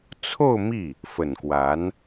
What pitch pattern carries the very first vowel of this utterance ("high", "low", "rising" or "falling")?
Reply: falling